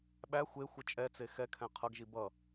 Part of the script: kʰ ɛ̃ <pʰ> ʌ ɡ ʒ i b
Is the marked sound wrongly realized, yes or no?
yes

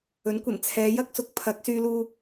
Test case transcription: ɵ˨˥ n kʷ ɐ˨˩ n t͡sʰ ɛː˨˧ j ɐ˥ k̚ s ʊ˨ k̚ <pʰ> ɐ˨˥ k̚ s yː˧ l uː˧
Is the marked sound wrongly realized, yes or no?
no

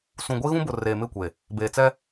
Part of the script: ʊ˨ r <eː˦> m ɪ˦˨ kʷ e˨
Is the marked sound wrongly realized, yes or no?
yes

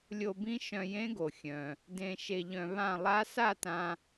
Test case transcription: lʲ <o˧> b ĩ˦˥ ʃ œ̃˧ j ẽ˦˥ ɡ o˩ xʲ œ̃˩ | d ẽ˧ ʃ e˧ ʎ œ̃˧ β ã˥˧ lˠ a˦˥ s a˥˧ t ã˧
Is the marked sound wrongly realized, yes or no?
no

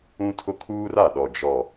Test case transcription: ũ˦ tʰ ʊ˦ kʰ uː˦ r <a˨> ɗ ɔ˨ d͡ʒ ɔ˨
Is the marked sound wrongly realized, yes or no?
no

